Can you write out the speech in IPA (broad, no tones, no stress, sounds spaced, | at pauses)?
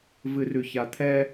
v ɨ r ʉ ç a t̪ʰ ɛ